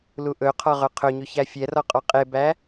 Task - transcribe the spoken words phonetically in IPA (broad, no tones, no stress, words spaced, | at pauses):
luʔɵqʰɔ ʁœqʰɵɲʉ çæfʲɛrɔ qʼɔqʼebæ